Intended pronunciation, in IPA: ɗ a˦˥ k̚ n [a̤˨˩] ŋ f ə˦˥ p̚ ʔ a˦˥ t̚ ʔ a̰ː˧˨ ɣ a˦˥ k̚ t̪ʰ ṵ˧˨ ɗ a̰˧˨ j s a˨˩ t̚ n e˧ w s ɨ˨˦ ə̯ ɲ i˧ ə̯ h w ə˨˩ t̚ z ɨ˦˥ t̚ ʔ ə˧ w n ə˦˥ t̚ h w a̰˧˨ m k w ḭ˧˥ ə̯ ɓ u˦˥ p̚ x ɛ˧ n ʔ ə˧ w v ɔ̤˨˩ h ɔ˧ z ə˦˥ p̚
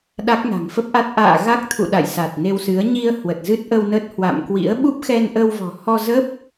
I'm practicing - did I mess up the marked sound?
no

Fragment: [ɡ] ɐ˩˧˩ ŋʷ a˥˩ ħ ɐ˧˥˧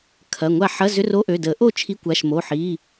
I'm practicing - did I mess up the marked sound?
yes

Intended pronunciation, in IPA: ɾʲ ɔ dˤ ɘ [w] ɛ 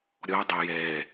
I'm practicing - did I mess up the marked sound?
yes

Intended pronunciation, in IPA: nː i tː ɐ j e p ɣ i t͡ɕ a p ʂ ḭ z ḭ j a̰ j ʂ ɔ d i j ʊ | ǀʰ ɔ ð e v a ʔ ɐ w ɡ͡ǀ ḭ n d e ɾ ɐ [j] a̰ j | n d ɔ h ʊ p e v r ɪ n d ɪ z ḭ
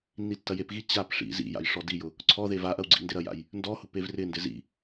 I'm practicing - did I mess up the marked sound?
no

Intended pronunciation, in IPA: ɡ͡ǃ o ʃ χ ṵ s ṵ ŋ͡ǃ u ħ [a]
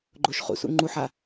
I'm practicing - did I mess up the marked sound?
no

